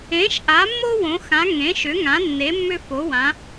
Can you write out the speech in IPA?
ẽ˨˦ ʃ ʔ a˨˦ mː o˦ w õ˨˦ x ã˨˦ ŋ ẽ˨˦ ʃ ʏ˨˦ ŋ ã˨˦ nː e˨˦ mː ʏ˦ f o˨˦ w ã˨˦

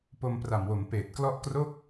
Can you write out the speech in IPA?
p o˧ m p r a˨˩ m w o˩˦ m p eː˨˩ t̚ k l ɔ˥˩ ʔ k r o˥˩ k̚

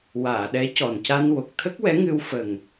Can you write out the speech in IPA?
w aː˨˩˨ ɗ ɛ˧˥ c ɔ˨˩ n c a˧ n w o˨˩ k̚ t̪ʰ ə˦˥ k̚ w ɛ˧˥ ŋ ɨ˧ w f ə˨˩ ŋ

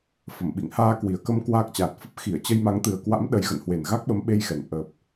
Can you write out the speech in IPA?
f ə˧˩ m ɓ ḭ˧˨ ŋ h aː˧ k w i˨˩ ə̯ k ə˧ m k w aː˦˥ k̚ t͡ɕ aː˨˩ t̚ f ə˦˥ p̚ x i˧˩ ə̯ t͡ɕ ə˧ j m a˨˦ ŋ t̪ ɨ˨˩ ə̯ k w a̰˧˥ m ɗ ə˨˦ j ɣ ə̰˧˨ n h w e˨˩ n ɣ a˦˥ k̚ ɓ ə˨˦ m ɓ e˧ j x ɛ˨˩ n ʔ əː˨˩ p̚

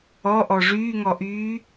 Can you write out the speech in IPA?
ɔ ʔ ɔ ʐ yː ŋ ɔ ʔ yː

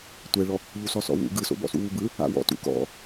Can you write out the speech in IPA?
tʷ ɛ ɭ ɔ | ʎ u s ɔ s ɔ̰ w ṵ ɡ ɯ s o̰ b ɔ̰ s ṵ w u b ɯ | a̰ w ɔ̰ t ṵ k ɔ̰

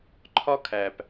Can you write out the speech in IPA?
ǃʰ ɒ˦ kʰ æ˨ p

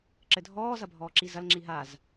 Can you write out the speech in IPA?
ǁ ɘ dʱ ɔː z ɐ bʱ ɔː ǁ i z ɐ l ŋ͡ǁ i ɦ a z

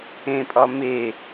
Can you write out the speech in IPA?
ẽ pʼ ɒ m e

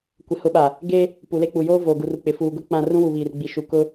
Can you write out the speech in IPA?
kʷ ɪ˨ h ʊ˨˦ ɓ a˨ | ɡ e˦ | p u˨ l e˦ k͡p u˨ j oː˦ v oː˨ ɡ u˨ r u˨ k͡p ɪ˨ f uː˨ ɡ ʊ˦ k͡p ã˦˨ r ũ˦ w u˨ β iː˨ r ɡ͡b i˨ ʃ u˨ k ʊ˦

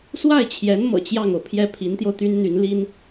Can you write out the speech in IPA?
s w a˥˩ ɪ̯ t͡ɕʰ j ɛ˧˥ n m ɤ̰˨˩ t͡ɕ j ɑ˥˩ ŋ o˩ ʊ̯ pʰ j ɛ˥˩ pʰ i˧˥ n t̪ j o˧ ʊ̯ t̪ y˥ n n̪ y˧˥ n l i˥ n

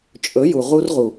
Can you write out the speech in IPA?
t͡ʃʼ ɵ˨˦ j u˨ ʁ u˧ r ʁ u˨

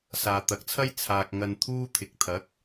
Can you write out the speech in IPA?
s aː˨ t̪ ɐ˨ k̚ t͡sʰ ɐ˥ j t͡sʰ aː˨ k̚ ŋ ɐ˧ n t̪ʰ uː˥ t̪ʰ ɪ˨ k̚ t̪ʰ ɐ˨˥ k̚

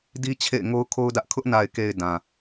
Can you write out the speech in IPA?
d i˦ t͡ɕʰ ḛ˦˨ ɪ̯ ŋ o˦ ʊ̯ kʰ o˦ ʊ̯ d ä˦ ʔ kʰ ʊ˦ ʔ n a˨ ɪ̯ k e˨ ɪ̯ d ã˨

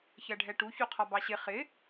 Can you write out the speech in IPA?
ç ɜ ɖʱ ɛ ʈ u ç u qʰ ɒ b ɑ ɕ ɪ χ ɪ

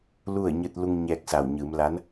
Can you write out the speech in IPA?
l u˥˨ ə̯ ɲ ɯː˧ t̚ l u˧ ŋ ɲ ɛː˧ k̚ s a˧˩ w ɲ ɯː˩˧ m l a˧˥ n

